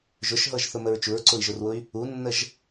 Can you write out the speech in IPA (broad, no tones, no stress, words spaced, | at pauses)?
ʒʊʃɦɤʒθʊməɹ t͡ʃuɹǀʊi̯ʒʊrwʊy̯ | unːəʒ